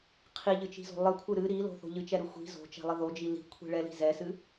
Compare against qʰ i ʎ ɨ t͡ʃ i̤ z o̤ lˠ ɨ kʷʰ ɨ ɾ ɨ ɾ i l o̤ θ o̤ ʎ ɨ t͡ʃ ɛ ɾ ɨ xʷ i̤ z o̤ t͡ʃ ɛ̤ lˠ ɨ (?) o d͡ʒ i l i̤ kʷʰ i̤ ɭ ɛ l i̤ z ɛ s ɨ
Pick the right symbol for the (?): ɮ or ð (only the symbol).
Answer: ð